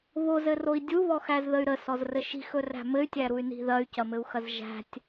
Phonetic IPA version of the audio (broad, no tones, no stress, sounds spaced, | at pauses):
β o z ɘ r o i̯ dʲ u β ɔ x æ z ð ə y̯ ɾ ə s ɔ z r ɘ ʃ i̤ x ɵ r æ̤ m ɘ y̯ tʲ æ ɾ u y̯ n i̤ ð ɐ y̯ c ɐ m ɘ u̯ x ɐ z ʒ æ̤ tʲ